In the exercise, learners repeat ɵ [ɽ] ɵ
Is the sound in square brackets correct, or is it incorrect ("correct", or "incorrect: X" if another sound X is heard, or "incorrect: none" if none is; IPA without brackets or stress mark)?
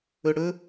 correct